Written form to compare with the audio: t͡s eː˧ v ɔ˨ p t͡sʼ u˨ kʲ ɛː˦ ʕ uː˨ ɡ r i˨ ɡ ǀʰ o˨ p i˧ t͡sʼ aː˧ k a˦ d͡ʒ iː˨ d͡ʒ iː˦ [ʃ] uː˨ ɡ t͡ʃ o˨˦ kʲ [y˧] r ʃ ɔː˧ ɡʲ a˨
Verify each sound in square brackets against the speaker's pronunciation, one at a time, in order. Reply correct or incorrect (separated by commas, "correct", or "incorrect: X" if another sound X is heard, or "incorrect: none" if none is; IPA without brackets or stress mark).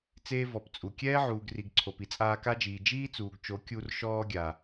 incorrect: t͡s, incorrect: u˧